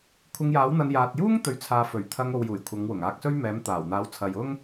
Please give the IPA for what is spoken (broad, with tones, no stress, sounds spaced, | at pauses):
kʷʰ ɪ˧ ŋ j aː˨˥ w n̪ ɐ˧ n j aː˨ t̚ j uː˥ ŋ t̪ ɵ˨ ɥ t͡sʰ aː˨ f ɵ˨˩ ɥ t̪ʰ ɐ˧ ŋ o˨ w j uː˨˩ j kʷʰ ɐ˨˧ ŋ w ʊ˨˩ ŋ aː˧ k̚ s ɵ˥ ɥ m ɛː˨˥ m t̪ aː˨˩ w n̪ aː˨˥ w t͡sʰ ɐ˨ j ʊ˥ ŋ